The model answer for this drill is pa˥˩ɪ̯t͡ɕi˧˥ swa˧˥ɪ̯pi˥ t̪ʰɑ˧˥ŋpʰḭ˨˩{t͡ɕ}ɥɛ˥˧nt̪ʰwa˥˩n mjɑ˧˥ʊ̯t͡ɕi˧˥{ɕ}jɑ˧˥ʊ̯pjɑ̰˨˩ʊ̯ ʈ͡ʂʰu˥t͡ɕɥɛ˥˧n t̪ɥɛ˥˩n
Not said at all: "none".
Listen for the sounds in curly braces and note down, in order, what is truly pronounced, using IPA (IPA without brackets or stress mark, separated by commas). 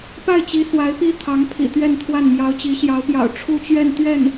t̪, ɕ